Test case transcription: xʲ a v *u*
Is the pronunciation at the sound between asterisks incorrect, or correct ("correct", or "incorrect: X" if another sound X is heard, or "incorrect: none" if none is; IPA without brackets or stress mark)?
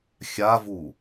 correct